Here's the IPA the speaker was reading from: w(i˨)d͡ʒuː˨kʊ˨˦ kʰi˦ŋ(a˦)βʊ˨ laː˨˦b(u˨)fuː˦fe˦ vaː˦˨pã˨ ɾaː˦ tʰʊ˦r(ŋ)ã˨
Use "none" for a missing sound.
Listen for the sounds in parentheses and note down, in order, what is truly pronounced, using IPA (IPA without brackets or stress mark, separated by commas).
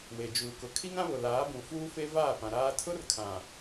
e˨, ã˦, ũ˨, kʰ